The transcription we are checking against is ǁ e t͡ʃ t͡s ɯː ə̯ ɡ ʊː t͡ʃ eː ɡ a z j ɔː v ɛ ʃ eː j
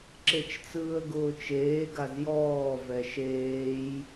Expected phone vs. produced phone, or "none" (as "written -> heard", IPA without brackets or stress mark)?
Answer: none